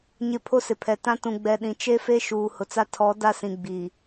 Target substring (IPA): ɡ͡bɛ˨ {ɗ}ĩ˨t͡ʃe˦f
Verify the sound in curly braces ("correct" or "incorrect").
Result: correct